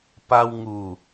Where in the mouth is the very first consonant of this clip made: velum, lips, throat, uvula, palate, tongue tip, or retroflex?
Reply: lips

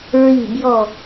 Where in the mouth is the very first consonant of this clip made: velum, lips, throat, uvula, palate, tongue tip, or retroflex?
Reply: tongue tip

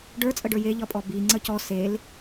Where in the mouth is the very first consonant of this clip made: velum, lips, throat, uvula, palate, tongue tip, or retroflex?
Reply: retroflex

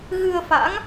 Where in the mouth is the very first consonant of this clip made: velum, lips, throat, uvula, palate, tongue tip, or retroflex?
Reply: velum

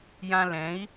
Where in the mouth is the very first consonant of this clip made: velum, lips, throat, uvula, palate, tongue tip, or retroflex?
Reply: palate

